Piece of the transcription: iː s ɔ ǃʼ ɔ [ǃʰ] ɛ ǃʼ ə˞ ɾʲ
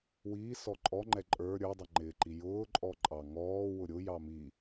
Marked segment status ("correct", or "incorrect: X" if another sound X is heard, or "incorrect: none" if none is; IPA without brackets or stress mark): incorrect: ŋ͡ǃ